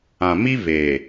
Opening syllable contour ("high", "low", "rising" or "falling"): low